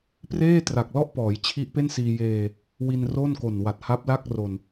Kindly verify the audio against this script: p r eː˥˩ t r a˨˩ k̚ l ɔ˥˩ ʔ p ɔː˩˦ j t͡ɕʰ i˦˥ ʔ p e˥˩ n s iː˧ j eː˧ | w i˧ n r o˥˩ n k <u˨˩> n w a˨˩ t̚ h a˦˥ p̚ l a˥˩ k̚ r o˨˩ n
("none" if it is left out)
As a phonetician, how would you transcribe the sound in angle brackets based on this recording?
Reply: o˨˩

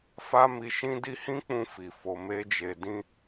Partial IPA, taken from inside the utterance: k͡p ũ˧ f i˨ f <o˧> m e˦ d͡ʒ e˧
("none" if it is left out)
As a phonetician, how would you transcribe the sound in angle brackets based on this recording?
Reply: o˧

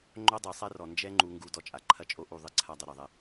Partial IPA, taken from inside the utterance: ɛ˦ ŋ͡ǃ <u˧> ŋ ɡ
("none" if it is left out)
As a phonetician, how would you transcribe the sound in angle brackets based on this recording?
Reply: u˧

